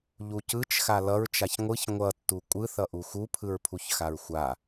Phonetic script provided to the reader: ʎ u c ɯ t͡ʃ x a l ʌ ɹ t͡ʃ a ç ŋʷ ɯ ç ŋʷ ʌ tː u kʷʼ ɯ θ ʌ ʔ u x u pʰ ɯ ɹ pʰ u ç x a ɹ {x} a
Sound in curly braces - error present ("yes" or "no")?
yes